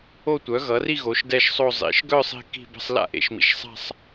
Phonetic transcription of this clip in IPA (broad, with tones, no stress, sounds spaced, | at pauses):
o˥˧ tʷ œ˩˥ ɣ ʌ˩˥ r i˥˧ ɣ o˩˥ ʃ d ɛ˥˧ ʃ sˤ o˥˧ zˤ ḭ˩˥ ʃ ɡ œ˥˧ sˤ i̤˥˧ k i̤˥˧ b ə̤˥˧ sˤ l a̰˥˧ ʔ ḛ˩˥ ʃ m ḭ˩˥ ʃ sˤ a̤˥˧ sˤ